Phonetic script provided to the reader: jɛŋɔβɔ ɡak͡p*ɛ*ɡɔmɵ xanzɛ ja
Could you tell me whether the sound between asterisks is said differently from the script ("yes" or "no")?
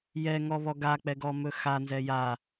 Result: no